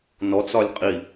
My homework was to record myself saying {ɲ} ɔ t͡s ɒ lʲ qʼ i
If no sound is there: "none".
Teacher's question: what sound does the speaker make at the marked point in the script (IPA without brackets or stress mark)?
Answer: n